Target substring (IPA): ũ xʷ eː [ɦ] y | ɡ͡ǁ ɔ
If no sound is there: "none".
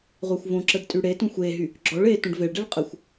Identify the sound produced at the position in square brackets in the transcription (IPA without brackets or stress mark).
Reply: ɦ